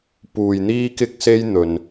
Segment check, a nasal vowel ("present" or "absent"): absent